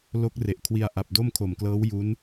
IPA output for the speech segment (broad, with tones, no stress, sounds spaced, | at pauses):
l o˦˥ k̚ r e˨˩ ʔ kʰ w i˧ a̯ ʔ a˨˩ p̚ d o˥˩ m kʰ o˨˩ m k l ɤː˦˥ w j u˦˥ n